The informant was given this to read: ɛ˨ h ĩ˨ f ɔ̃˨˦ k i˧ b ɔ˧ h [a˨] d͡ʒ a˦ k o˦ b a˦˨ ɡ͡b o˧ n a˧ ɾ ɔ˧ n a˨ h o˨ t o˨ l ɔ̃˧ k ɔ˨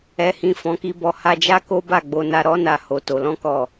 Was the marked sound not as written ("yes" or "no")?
yes